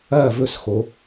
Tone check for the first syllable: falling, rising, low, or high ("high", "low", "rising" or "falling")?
falling